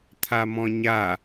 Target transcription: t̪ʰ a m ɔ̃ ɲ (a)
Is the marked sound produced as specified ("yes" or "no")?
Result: yes